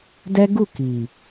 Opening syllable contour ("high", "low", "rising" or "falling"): high